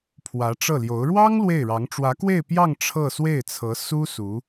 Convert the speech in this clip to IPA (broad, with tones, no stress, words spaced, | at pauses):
pʰwä˧˥ʈ͡ʂɤ˥˩ljo˧˥ʊ̯ ɻwɑ˥ŋ lwe˥˩ɪ̯ɻɑ˧˥ŋ ʈ͡ʂwä˧˥kwe˥˧ɪ̯ pjɑ˥˧ŋ ʈ͡ʂʰɤ˥˧swe˥˩ɪ̯t͡sʰɤ˧˥ su˥ su˧˥